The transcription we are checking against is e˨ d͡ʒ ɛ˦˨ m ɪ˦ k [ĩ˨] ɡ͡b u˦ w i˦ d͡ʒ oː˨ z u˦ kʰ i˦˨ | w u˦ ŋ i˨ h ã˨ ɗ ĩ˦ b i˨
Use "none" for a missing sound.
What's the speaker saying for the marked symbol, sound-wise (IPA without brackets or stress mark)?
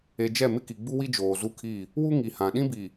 i˨